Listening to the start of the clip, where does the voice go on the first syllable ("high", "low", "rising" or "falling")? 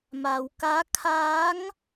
low